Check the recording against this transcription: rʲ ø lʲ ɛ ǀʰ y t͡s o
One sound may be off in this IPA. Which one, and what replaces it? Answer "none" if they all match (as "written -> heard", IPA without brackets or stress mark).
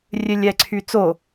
none